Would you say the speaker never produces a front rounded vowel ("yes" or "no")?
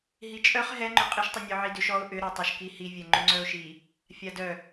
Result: no